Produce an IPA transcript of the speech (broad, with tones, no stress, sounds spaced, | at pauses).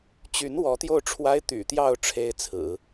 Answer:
t͡ɕ y˧˥ n w ɔ˧˥ t̪ j o˥˩ ʊ̯ ʈ͡ʂʰ w a˥ ɪ̯ t̪ y̰˨˩ t̪ j ɑ˥˩ ʊ̯ ʈ͡ʂʰ e˥ ɪ̯ t͡sʰ ɹ̩˨˩˦